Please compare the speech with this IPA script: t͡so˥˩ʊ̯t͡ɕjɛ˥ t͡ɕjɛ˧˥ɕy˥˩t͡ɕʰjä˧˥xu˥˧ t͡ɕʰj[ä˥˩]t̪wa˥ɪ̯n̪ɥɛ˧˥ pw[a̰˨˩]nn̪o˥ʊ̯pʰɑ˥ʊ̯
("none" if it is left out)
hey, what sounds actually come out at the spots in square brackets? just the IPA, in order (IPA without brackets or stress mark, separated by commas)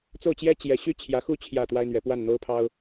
ä˥˩, a˥˩